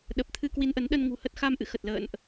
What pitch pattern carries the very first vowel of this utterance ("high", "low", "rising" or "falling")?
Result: low